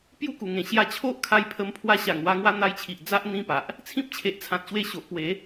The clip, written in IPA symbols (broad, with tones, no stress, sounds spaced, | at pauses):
p j u˦ k u˨˩ ŋ ẽ˨˩ ɕ j a˧ t͡ɕʰ o˦ ʔ kʰ a˧ j pʰ ə˧ m pʰ w a˧ ɕ a˨˩ ŋ w a˧ ŋ w a˧ n̪ a˧ j t͡ɕʰ i˨ ʔ d͡z a˦ ʔ n̪ ĩ˦ p a˨ ʔ | t͡sʰ ĩ˦ p̚ t͡ɕʰ e˨ ʔ t͡sʰ ã˨ t̚ ɕ w e˧ ɕ o˨ ʔ p w e˨˦